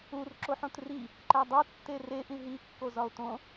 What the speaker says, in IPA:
u r ǁ o ħ õ t r i | ǃ æ dˤ o tː e r e ʔ ĩ ɦ i kː o z ɒ o̯ t õ

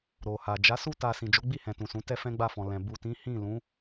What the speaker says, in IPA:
ɾ o˨ h a˨ d͡ʒ a˨˦ s u˦ t a˧ s ĩ˨ d͡ʒ o˨˦ ɡ͡b i˦˨ h ɛ̃˨ t ũ˨ s ũ˨˦ t ɛ˦ f ɛ̃˦ ɡ͡b a˦˨ f ɔ̃˨ l ɛ̃˨ b u˨ t ĩ˨˦ h ĩ˦˨ l ũ˨˦

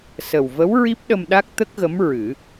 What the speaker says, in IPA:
s ə˨˩ w v ə˧˥ w ɹ i˦˥ p̚ ɗ ə˧ m ɗ a˦˥ k̚ t̪ ə˦˥ k̚ ɣ ə˧˥ m ɹ ɨ˨˩˦

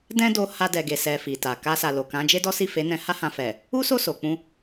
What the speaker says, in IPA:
d ɛ̃˦ d o˦ h a˧ d ɛ˨ ɡ e˨ s ɛ˧ f i˨ t a˨ k a˧ s a˨ l o˨ k ã˨˦ d͡ʒ e˦ d ɔ˦ s i˦˨ f e˨˦ n ɛ̃˧ h a˦ h ã˧ f ɛ˨ | u˦ s o˦˨ s o˨ k͡p ũ˧

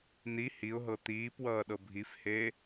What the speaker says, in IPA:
n̪ i h i ʊ̯ ɦ ɤ t̪ iː p w ʌː ɗ ɤ bʱ i f h eː

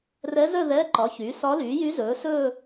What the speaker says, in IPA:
r ɛ˧˥ z œ˥˧ ð ɛː˧˥˧ ǃ ɒ˩˥ ç yː˩˥ s ɒ˧˥ l yː˩˥ j y˧˥ z ɵː˩˥ s ɵː˥˧

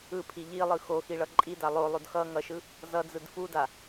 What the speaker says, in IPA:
ɯ pʰ i ʎ i lˠ ɯ x o x i ɭ ʌ ǃʼ i d a lˠ o lˠ o d x ʌ ŋ ʌ ʃ ɯ | z ʌ d͡z ɯ d f u d a

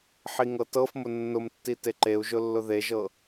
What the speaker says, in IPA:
ħ i ŋ ɤ t ɤ f m ʊ nː ʊ m tː i t e ǃ e u̯ ʒ ʊ lː ʊ ð e ʒ ɤ

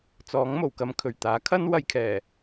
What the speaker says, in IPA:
t͡s ɔː˨˥ ŋ m o˨˩ w k ɐ˧ m kʰ ɵ˨˩ ɥ t̪ aː˨˥ kʰ ɐ˥ n w ɐ˧ j kʰ ɛː˨˩

